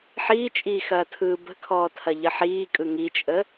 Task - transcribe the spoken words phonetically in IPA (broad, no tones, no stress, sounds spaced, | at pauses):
ħ iː t͡ʃʼ iː x ɐː tʰ ɯː b ə̤ kʰ ɔː tʰ ɐ ʎ ə ħ iː kʼ ɯ ŋ i t͡ʃʼ ə